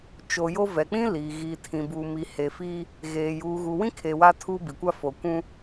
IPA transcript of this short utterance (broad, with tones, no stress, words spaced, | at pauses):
t͡ʃo˨jo˦ vɛ˨k͡pĩ˦ li˨ ɣiː˨tʰĩ˨bu˨mi˨ he˨fiː˦ | ɣeː˨ juː˨ɣu˨wĩ˦kʰe˨ wa˦tʰuː˦bi˨kʷa˦ fo˨kʷũ˦